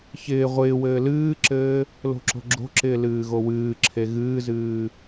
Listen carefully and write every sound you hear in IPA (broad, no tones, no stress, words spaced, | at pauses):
çɪː ʁʷɪːwɘː lɨːǁɘː | lo̤ǁo̤ɡ͡ǁo̤ǁɪː lɨːɣowɨːǁʰe ɣɨːzɨː